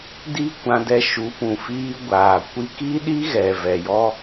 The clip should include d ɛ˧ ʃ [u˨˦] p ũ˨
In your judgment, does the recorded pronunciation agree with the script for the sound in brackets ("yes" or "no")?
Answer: yes